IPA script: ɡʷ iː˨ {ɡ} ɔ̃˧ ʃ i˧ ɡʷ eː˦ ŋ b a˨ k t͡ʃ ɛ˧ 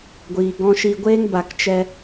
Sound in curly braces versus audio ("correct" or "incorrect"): correct